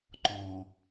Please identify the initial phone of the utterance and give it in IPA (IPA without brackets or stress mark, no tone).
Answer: ǃ